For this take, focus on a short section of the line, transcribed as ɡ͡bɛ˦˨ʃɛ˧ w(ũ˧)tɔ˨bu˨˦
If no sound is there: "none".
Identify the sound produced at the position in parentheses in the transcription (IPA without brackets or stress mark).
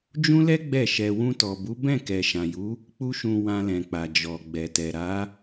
ũ˧